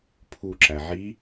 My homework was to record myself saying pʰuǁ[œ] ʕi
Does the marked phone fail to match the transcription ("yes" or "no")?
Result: yes